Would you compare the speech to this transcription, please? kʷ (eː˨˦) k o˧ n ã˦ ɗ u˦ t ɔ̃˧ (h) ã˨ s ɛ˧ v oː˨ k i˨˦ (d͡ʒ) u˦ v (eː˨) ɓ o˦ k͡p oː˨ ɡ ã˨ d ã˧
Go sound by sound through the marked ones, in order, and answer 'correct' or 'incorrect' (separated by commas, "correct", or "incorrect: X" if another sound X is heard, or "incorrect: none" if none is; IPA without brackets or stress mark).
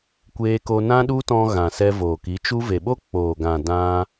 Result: incorrect: eː˧, incorrect: ɣ, incorrect: t͡ʃ, incorrect: e˨